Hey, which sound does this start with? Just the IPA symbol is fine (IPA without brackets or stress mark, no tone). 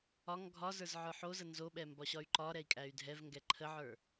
ɒ